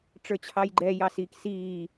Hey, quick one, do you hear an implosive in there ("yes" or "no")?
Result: no